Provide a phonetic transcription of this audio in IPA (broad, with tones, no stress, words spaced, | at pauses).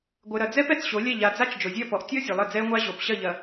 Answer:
ɡʷɘ˨ɾɐ˨d͡zɛ˦p ɛ˨t͡sɕo˨˦lʲɛ˦˨ ʎa˨d͡za˦t͡ʃ d͡ʒo˨zʲɐ˦˨pɔ˨ʔ tʲɔ˦ zʲɘ˨lˠɘ˦˨d͡zɛ˦ə̯ŋʷa˦ ʑo˨pɕɐ˦˨ ʎɐ˨